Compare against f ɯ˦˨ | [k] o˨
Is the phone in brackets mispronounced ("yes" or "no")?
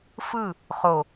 yes